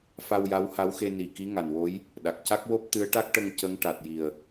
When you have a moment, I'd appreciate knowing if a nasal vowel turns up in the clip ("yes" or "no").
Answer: no